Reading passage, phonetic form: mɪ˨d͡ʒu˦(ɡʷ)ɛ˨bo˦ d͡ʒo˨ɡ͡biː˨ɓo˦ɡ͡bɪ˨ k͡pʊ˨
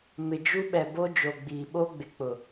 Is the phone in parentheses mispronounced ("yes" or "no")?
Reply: yes